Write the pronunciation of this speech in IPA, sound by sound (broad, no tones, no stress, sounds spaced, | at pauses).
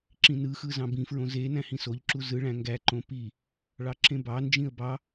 ǁ ĩ n ɯ x ɯ z ɑ̃ b ĩ f ɹ õ z e n æ̃ h ĩ s o ʎ ǁ u z ɯ ɭ æ̃ ŋ ɡ æ ǃ õ p i | ɭ ɑ ǁ ẽ b ɑ n d͡ʒ ĩ ə̯ b ɑ